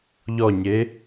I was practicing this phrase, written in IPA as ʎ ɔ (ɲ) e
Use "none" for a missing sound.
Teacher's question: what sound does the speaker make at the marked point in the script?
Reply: ɲ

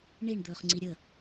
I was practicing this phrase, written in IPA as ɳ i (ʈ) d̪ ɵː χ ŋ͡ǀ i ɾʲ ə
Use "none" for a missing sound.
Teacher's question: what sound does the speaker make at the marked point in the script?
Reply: ɳ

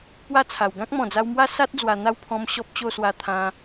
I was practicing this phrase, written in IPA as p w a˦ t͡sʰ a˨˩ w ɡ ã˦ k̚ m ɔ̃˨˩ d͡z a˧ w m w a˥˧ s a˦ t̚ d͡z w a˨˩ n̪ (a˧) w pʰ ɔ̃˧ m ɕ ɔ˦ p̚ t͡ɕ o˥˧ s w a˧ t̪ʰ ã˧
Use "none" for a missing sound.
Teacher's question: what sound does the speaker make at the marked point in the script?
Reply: a˥˧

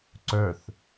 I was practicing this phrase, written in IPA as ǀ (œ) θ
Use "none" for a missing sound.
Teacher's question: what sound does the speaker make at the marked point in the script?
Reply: œ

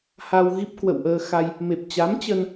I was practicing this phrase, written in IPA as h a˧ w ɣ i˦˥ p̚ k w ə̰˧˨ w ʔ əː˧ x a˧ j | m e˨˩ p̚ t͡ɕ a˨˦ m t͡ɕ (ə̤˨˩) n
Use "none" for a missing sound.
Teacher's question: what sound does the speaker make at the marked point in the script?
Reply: ə˧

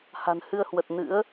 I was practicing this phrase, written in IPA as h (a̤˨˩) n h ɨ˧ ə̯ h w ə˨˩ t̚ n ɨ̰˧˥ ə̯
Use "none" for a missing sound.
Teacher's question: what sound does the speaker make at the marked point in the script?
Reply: a̤˨˩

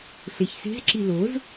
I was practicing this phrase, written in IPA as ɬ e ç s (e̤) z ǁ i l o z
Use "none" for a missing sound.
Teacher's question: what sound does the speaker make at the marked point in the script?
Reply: e̤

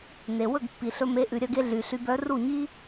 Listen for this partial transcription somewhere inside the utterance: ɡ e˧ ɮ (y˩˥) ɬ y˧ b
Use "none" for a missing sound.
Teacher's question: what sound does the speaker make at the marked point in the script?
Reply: y˩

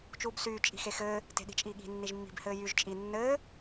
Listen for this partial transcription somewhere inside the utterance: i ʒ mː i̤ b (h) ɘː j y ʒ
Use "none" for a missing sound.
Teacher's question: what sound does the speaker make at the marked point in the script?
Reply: h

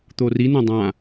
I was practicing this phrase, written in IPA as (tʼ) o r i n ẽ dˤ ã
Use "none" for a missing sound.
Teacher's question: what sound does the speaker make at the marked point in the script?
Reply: t̪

